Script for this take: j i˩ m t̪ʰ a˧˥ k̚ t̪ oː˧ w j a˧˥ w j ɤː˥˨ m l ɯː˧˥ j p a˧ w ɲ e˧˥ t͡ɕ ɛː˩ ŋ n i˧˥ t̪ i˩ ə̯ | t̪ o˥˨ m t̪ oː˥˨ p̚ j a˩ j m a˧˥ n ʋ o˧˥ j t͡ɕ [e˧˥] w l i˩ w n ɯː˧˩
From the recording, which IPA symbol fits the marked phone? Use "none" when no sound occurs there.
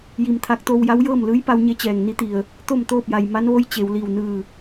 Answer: e˩˧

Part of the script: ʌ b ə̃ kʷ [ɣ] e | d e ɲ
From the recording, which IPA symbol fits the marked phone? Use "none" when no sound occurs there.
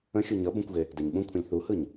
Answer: ɣ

